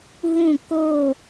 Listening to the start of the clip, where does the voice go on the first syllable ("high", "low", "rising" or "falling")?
falling